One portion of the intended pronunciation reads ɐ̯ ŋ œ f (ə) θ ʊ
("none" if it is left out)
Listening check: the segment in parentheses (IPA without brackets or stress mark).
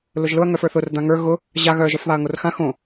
ə˞